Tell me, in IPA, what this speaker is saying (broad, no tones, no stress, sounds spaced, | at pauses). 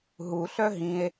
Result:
ɦ u ɬ œ ɦ ĩ e̯